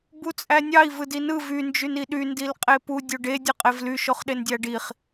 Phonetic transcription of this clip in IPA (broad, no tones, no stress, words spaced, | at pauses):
but͡sʼænʲɑi̯ vɯdinɯ vy nd͡ʒyniɗy ndilqʼepu dʲoɖe dʲɯqʼevly ʃoχɗendʲæɖiχ